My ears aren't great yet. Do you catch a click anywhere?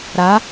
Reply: no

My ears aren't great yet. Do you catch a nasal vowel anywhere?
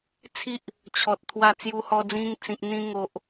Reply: yes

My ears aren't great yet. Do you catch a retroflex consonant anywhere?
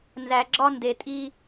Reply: no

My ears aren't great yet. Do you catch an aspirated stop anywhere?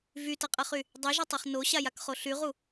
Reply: no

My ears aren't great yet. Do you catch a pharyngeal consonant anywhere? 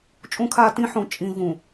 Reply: yes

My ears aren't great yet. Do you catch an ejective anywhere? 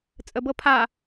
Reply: yes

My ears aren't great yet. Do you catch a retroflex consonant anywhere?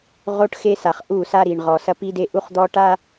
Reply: yes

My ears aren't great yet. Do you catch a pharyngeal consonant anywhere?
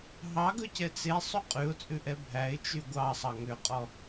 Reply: no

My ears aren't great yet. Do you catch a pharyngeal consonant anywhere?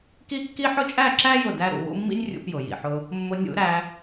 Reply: yes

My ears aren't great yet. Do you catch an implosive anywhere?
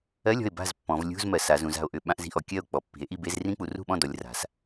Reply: yes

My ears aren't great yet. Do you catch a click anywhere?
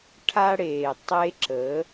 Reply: yes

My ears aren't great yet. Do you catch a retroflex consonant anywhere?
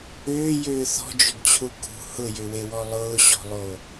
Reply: no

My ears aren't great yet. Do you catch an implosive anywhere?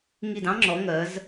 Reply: no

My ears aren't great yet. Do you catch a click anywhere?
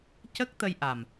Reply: no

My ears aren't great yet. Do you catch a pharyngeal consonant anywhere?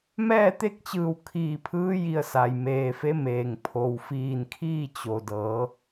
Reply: no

